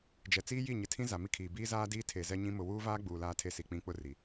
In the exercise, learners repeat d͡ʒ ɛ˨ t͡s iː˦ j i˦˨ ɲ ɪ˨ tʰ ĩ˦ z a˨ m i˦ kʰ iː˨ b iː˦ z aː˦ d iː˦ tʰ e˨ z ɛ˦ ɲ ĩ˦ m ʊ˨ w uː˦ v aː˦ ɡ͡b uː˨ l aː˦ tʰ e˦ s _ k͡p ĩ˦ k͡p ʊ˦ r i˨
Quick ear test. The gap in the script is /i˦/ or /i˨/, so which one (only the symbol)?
i˨